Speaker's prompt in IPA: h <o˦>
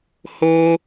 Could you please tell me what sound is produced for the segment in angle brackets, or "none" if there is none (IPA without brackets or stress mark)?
o˦